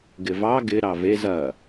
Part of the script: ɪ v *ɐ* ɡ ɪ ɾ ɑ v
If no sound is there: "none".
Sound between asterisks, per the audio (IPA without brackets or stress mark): ɑ